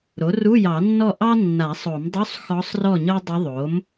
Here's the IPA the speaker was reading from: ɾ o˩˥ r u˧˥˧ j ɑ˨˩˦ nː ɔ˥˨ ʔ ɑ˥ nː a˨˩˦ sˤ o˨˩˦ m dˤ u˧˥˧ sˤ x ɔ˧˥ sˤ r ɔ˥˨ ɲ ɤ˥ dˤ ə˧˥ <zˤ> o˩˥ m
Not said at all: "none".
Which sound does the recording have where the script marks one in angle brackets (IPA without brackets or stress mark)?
ðˤ